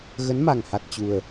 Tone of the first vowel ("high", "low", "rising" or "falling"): rising